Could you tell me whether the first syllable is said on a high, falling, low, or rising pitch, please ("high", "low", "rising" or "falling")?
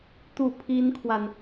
falling